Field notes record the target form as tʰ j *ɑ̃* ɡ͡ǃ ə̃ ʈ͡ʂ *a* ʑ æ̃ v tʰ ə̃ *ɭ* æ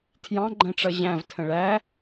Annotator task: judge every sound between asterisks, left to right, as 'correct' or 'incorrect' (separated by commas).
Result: correct, incorrect, correct